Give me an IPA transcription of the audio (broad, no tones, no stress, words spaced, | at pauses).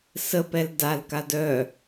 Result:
səpɛl dalkad œ